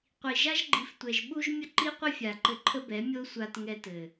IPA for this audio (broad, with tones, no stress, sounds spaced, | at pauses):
qʷ i˨ ʒ a˦ ʒ ɡ͡ǃ i˨˦ f tʷ ɛ˨ ʒ ɓ u˦ ʒ mʲ ə˦ ǃ i˦ qʷ ɘ˦ fʲ a˨ ǃ ɘ˧ ǃʰ ə˦ b ɛ˨˦ mʲ o˦ sʷ a˧ t ŋ ɛ˧ t ɘ˨